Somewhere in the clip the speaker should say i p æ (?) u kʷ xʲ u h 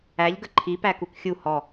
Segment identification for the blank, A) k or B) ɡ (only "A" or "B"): A